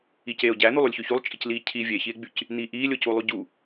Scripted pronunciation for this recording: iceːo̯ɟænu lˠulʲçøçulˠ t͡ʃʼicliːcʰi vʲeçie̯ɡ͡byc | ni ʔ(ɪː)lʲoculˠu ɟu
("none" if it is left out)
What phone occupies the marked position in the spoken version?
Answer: iː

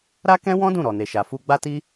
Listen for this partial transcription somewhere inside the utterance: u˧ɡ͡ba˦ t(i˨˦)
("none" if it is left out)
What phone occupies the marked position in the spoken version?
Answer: i˦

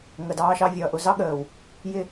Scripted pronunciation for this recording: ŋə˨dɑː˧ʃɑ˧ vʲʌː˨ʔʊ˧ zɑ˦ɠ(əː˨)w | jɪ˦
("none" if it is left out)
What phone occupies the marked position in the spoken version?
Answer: əː˨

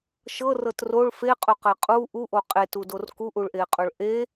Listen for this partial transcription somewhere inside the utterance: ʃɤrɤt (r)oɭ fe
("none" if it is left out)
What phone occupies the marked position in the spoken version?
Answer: r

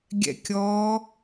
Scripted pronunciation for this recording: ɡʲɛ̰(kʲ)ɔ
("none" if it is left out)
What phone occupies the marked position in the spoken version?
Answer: kʲ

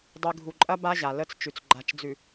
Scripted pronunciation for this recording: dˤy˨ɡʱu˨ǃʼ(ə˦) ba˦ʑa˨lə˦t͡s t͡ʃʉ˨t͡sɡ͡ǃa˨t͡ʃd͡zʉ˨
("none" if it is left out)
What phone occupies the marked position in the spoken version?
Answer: ɐ˦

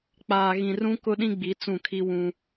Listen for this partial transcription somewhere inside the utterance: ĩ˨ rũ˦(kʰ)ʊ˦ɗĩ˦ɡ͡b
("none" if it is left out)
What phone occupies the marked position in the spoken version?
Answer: k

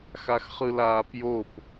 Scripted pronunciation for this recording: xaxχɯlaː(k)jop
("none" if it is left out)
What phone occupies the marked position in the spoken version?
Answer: p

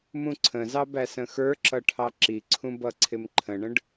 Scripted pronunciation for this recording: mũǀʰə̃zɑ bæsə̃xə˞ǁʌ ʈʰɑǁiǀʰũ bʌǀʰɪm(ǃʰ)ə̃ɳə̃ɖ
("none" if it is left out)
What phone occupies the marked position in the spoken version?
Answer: ǃʰ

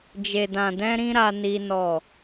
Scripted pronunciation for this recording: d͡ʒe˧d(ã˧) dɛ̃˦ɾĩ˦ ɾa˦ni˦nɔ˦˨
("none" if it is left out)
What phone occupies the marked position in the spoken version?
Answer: ã˧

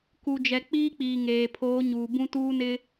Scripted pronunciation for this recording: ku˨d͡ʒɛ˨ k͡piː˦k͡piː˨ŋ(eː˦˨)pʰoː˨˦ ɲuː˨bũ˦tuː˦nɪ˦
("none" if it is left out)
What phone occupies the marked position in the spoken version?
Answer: eː˨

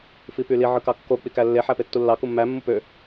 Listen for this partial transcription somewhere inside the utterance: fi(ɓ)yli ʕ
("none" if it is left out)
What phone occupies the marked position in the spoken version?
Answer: p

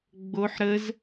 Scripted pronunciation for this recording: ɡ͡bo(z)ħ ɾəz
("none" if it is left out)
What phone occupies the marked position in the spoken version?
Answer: none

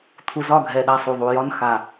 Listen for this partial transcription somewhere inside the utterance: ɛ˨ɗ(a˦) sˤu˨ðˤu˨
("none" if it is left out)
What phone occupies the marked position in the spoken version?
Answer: a˧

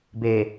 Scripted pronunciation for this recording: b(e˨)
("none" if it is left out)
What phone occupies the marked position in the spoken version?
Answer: e˨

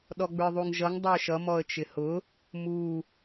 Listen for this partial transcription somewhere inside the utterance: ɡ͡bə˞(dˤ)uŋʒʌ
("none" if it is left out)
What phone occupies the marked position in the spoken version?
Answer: ðˤ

